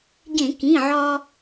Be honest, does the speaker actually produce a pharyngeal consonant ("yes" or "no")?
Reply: yes